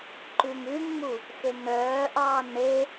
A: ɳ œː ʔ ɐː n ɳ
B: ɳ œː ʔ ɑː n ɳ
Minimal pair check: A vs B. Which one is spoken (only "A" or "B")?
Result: B